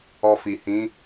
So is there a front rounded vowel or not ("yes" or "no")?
no